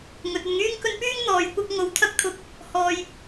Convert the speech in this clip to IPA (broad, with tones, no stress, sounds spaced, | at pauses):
ŋ ɵ˨ t̚ ɵ˨ n ŋ yː˥ ŋ k ɵ˧ n p yː˥ ŋ n̪ ɔː˨ j kʷ ɐ˥ k̚ ŋ o˨˧ w t̪ʰ ɐ˥ k̚ t̪ʰ ʊ˨˥ k̚ | h ɔː˨ j